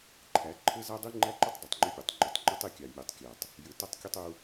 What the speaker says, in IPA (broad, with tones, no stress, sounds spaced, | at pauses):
ǃʰ æ˨˦ ǃʰ ɘ˦ z a˦ dˤ i˦ ŋ͡ǃ æ˦ ǃ ʏ˦ tˤ dˤ i˨ tˤ ŋ͡ǃ ʏ˦ pʲ u˨ tˤ ŋ͡ǃ ʏ˨ tˤ ŋ͡ǃ ɘ˦ tˤ i˦˨ kʲ a˨ mʲ u˨ tˤ kʲ æ˨ tˤ | j ɘ˨ t ʌ˦ tˤ kʲ ɘ˦ tˤ u˦